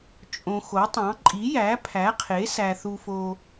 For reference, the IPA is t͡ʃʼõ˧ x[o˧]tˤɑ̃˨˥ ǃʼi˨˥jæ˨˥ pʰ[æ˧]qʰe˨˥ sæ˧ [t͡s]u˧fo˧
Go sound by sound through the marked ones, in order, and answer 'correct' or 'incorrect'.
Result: incorrect: o˨˥, incorrect: æ˨˥, incorrect: θ

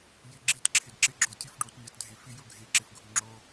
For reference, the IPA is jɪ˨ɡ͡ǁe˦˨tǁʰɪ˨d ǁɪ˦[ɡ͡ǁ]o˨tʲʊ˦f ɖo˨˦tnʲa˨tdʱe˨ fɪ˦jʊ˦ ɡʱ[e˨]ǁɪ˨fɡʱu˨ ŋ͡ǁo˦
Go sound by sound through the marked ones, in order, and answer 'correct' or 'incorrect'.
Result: correct, correct

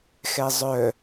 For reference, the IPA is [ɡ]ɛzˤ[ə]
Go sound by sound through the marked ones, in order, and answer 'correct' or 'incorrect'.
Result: incorrect: x, incorrect: œ

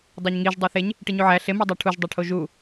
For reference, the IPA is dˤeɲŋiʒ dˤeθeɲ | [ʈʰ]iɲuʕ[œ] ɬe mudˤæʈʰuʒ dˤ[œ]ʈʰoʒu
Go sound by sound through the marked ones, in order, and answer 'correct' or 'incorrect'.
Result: incorrect: ʈ, incorrect: æ, incorrect: æ

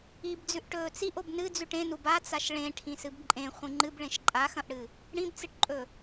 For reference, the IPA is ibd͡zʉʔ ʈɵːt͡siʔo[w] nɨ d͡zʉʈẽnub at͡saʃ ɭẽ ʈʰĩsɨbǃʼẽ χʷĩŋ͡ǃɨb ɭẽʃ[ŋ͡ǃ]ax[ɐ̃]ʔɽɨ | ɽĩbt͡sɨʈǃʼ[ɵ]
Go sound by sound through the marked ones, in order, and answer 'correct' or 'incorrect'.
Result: incorrect: b, incorrect: ǃʼ, correct, correct

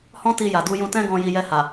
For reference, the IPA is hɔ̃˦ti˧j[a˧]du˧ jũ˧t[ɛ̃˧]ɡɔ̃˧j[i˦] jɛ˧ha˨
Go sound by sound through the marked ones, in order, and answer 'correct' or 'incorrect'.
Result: incorrect: a˨, incorrect: ɛ̃˦, incorrect: i˧

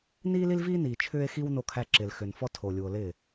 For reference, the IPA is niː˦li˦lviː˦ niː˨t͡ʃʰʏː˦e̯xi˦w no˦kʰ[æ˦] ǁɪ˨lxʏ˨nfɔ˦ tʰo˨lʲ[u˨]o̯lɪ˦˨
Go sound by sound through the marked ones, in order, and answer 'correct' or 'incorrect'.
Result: correct, correct

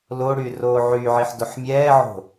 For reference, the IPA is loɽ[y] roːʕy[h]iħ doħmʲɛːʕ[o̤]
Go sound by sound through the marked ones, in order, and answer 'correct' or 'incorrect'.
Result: correct, incorrect: ʕ, correct

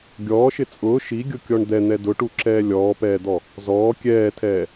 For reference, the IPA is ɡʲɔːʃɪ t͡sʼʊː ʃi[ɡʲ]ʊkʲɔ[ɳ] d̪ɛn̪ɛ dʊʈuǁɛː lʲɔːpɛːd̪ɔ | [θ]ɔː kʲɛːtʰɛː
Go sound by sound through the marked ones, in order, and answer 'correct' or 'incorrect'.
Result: correct, correct, incorrect: z

